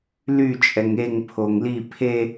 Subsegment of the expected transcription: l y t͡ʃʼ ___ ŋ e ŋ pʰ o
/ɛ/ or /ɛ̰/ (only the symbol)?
ɛ